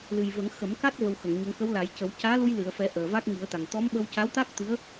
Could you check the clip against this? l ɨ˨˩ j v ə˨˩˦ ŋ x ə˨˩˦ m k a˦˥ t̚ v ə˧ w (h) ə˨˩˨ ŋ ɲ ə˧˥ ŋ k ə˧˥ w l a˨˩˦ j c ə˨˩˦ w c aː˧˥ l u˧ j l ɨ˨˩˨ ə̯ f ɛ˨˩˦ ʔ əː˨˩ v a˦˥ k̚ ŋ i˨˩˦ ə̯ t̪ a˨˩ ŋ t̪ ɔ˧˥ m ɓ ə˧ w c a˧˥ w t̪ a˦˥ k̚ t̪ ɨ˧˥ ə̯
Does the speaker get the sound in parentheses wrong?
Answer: yes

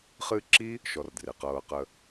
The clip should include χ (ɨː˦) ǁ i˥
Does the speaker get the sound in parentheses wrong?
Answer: no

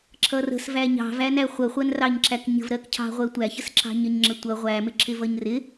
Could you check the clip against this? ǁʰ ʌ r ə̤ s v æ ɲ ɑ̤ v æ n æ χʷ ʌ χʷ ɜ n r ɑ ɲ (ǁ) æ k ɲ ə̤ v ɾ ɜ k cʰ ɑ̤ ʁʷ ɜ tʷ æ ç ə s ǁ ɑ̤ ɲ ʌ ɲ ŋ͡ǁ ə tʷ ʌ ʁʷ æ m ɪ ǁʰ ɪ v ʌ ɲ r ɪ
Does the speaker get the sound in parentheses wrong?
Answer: no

